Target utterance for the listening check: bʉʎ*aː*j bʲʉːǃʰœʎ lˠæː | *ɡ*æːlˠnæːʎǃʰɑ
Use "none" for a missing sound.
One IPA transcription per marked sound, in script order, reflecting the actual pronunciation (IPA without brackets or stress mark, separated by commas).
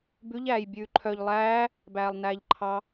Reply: æː, b